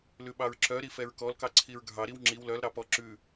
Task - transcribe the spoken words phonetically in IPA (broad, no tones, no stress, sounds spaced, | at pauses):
l ʉ ɓ ɑ ɹ ǁ œ ɾ i f ɛ ɹ k ɔ l k ɑ ǀʰ i ɹ ɡʱ ɑ ɾ i w ŋ͡ǁ i w l œ l ɾ ɑ p ɔ ǁ ʉ